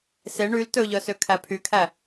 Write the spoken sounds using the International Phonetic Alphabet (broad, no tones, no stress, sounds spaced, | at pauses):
s e ɳ y l t ɵ ʎ œ s ø kʰ æ pʰ y kʰ æ